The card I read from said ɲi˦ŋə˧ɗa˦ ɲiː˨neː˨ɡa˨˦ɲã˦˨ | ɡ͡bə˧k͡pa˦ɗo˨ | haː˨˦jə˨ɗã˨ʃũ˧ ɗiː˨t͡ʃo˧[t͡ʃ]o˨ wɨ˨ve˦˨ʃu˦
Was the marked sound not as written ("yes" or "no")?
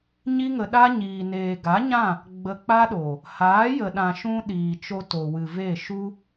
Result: yes